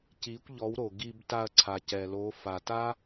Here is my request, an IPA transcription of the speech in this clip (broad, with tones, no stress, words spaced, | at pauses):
ci˨˦kʷ ʎɔ˨˦wɾo˨ ɡi˧bta˧ɐ̯ǀʰa˨ cɛ˨lo˨˦ fa˨ta˦